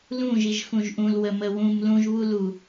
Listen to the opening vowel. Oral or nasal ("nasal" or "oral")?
nasal